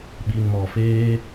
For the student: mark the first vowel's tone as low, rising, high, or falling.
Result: low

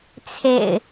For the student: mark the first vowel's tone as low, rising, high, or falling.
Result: low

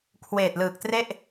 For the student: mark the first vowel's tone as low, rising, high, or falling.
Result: low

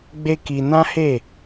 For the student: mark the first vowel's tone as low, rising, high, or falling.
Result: high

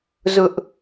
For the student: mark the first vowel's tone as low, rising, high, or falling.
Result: high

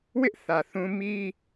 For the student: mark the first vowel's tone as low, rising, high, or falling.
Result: high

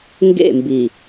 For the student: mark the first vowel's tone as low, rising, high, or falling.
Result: falling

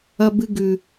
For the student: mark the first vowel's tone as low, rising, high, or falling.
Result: high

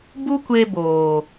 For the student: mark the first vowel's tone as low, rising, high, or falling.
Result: high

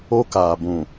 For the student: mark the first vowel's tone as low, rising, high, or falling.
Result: high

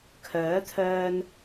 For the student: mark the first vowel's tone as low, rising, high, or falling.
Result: rising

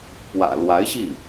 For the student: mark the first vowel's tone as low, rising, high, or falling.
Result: low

